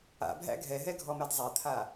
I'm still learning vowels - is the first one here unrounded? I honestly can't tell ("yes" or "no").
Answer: yes